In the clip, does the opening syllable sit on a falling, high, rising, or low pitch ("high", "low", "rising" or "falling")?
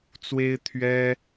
high